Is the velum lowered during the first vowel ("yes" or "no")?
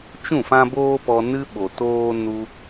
yes